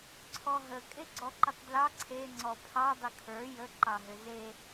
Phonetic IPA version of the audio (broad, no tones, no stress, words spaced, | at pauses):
ǀʰɔɦə kʼeɡ͡ǀɔǃʏtˤdlɑ ǀʰe ŋ͡ǀɔpʰɑ dˤʏkʰə˞ jə ǃɑɦʏze